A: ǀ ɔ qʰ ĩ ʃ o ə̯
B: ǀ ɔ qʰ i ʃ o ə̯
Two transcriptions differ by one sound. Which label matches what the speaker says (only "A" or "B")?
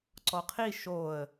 B